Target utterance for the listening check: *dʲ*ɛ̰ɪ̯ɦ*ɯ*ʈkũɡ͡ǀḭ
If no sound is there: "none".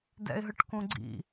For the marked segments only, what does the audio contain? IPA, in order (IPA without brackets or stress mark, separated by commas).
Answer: d, ɯ